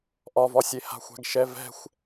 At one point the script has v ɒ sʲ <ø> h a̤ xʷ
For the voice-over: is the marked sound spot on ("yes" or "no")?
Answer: no